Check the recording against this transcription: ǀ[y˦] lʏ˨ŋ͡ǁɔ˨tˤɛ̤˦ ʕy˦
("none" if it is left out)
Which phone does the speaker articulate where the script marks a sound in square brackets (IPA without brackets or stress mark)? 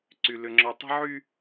y˨